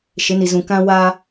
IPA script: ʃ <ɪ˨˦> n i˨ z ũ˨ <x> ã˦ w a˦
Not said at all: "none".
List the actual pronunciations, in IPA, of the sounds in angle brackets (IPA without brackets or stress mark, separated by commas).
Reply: ɪ˨˦, k